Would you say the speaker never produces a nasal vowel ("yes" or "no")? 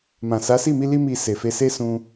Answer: no